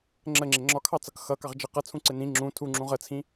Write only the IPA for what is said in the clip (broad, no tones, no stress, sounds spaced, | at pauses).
ŋ͡ǁ ə ŋ͡ǁ ɪ ŋ͡ǁ ɒ kʰ ɑ t͡s ʌ k x ʌ k ɑ ʁ d͡ʒ ə q ʌ t͡sʰ ũ ǀ ɪ n ĩ ŋ͡ǁ ũ tʰ u ŋ͡ǁ ũ ʁ ə t͡sʰ ĩ